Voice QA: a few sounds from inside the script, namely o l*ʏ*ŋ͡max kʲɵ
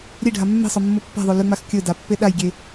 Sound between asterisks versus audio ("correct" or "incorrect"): correct